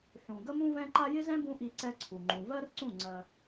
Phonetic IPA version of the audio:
ħ ũ˨ ɡ ə˦ m ũ˦ v ɛ̃˦ ǃ a˦ j ɪ˦ z ɛ̃˦ b ũ˦ ʔ i˧ ǀ ɛ˦ ǀʰ u˨ ŋ͡ǃ ũ˨ v ɜ˦ r ǀ ũ˦˨ ŋ͡ǀ ɜ˧

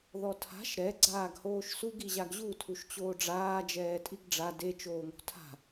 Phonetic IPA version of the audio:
ð ɔ tʰ a̤ ʃ ɾ ɛ ɡ͡ǀ aː ɡ h oː ʃ s u ɡ i ʑ a ɡ ʑ u tʰ u ʃ t͡ɕ oː ɖ͡ʐ aː d͡ʒ ɛː tʼ i ɡ ɖ͡ʐ a d e t͡ʃ oː ŋ o̤ tʰ a̤

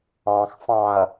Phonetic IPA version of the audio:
ɑ̃ x f ɑ̃ ɐ̯

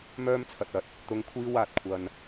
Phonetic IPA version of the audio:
m œː˥ m t͡sʰ ɐ˨ t̚ ɐ˨ t̚ | t̪ ʊ˧ ŋ kʷʰ iː˥ w aː˨ t̚ kʷʰ ɐ˨ n

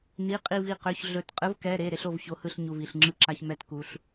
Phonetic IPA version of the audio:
n i˩˧˩ qʼ i˧˩ v i˧˩ q ø˩˧˩ ç ɮ ɵ˧˩ t qʼ ɯ˨˦ v k ɛ˩˧˩ ɾ e˩˧˩ ɾ e˦ ɬ o˥˨ v ç o˨˦ h ɯ˥˨ ɬ ɲ u˩˧˩ v i˩˧˩ ɬ ŋ͡ǁ ɯ˥˨ ǁ a˦ ç m ɛ˥˨ t k u˨˦ ɬ

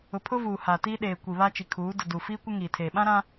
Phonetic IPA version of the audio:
ʊ˨ pʰ ʊ˦ v uː˨ h a˨ t i˦ ɗ eː˨ kʷ i˨ β a˦ t͡ʃ i˨ kʰ uː˨˦ d ʊ˨ d u˨ f iː˦ kʷ ɪ˦ ŋ iː˨ tʰ eː˨ ɓ ã˦ ɾ ã˦

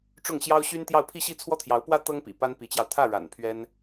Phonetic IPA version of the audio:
ʈ͡ʂ ʊ˥˩ ŋ ɕ j ɑ˥ ʊ̯ ɕ y˥ n t̪ j ɑ˥˧ ʊ̯ pʰ i˥˧ ɕ i˥˩ t͡sʰ w ɔ˥ t̪ʰ j ɑ˧˥ ʊ̯ p w ä˥ t̪ ɤ˥ ŋ p ḭ˨˩ p a˥ n p i˧˥ t͡ɕ j ɑ˧ ʊ̯ t̪ʰ ä˥˩ ɻ a̰˨˩ n pʰ ɥ ɛ˥ n

